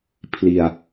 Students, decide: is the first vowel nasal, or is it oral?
oral